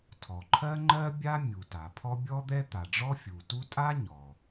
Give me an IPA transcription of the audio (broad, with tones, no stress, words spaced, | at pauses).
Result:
tʰɔ˩ǃʰɜ˥ŋ͡ǃɜ˥bʲa˥ mʲu˩ta˩pʰɔ˥ bʲɔ˥d̪ɛ˥ t̪a˩ɖ͡ʐɔ˥fʲu˩tu˥ tʼa˥ ɲɔ˩